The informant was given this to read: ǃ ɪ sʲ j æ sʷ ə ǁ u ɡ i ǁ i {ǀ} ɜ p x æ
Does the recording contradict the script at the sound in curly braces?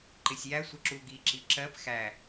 yes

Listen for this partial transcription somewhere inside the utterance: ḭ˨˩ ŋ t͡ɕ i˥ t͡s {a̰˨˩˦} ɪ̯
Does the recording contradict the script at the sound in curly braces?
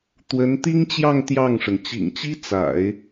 no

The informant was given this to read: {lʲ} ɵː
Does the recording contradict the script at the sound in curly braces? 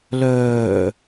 yes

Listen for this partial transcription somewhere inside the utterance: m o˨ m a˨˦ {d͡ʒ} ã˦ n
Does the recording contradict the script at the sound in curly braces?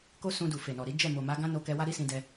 yes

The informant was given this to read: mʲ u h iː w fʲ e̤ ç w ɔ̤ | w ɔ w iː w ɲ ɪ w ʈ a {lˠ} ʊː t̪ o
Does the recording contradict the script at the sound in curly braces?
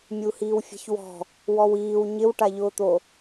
yes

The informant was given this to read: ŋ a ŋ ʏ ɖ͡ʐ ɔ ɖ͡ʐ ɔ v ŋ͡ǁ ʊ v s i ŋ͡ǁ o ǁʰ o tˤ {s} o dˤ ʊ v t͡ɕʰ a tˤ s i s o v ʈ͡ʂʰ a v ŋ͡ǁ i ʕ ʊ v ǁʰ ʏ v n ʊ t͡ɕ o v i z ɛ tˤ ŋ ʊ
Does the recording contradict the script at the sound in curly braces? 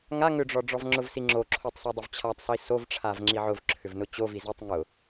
no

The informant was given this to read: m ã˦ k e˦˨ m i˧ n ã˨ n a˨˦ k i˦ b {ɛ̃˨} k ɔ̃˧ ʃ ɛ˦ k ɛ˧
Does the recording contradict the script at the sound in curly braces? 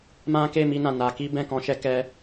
yes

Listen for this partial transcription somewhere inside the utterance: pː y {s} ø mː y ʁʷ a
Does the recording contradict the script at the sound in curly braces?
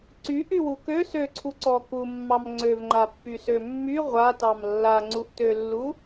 no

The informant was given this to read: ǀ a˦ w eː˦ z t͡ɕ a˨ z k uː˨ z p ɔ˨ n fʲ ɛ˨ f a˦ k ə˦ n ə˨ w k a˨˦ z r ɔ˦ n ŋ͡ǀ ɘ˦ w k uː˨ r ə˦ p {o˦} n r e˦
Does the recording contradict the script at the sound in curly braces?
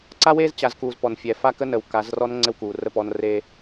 yes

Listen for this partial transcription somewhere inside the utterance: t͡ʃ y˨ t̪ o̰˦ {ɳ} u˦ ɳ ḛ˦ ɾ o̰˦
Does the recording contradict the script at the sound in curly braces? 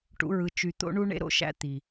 no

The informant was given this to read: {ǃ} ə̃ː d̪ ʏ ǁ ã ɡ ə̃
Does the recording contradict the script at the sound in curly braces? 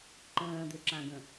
no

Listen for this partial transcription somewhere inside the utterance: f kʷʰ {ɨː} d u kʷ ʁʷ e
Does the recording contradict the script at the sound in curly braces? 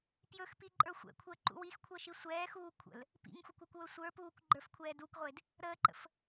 yes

